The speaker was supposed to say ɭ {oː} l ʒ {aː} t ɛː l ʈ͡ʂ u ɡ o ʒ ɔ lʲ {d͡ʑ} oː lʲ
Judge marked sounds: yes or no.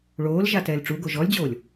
yes, no, yes

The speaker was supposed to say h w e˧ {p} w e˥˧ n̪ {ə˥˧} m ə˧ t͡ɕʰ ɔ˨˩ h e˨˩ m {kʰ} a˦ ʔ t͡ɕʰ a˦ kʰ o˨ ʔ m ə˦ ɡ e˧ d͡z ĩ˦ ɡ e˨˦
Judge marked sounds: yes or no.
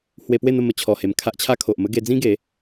yes, yes, yes

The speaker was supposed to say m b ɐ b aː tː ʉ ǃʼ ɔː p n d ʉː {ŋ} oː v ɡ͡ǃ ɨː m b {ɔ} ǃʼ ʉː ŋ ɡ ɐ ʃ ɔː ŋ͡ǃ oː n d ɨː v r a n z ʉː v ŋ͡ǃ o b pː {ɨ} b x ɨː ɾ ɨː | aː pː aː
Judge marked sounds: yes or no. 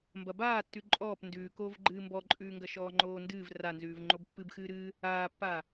no, yes, yes

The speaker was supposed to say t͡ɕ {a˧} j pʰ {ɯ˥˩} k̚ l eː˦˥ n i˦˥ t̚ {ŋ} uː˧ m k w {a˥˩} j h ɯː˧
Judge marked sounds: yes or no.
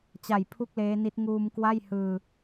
no, no, yes, yes

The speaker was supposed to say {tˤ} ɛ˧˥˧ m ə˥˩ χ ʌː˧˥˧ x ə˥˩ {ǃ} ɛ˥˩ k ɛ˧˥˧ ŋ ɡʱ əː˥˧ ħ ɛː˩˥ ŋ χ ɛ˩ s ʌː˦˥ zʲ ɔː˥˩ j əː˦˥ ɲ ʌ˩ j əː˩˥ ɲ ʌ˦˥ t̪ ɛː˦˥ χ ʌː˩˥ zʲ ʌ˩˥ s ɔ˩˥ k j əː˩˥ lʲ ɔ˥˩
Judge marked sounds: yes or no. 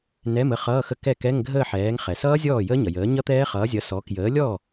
no, no

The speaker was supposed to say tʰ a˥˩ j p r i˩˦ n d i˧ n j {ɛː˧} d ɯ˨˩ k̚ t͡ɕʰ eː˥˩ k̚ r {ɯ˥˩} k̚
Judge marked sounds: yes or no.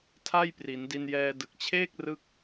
yes, yes

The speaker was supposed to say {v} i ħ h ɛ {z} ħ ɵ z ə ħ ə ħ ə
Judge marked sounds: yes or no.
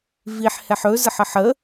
yes, no

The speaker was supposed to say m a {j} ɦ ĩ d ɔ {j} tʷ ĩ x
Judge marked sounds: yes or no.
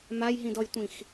yes, yes

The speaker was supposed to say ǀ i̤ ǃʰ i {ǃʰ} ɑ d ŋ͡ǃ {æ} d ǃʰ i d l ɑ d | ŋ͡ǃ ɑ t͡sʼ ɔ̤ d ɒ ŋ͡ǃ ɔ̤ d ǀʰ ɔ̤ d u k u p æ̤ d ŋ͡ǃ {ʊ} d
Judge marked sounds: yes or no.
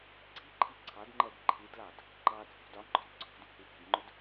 no, no, yes

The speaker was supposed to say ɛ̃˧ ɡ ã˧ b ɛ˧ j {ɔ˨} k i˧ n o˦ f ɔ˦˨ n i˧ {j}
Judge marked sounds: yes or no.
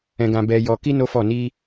no, no

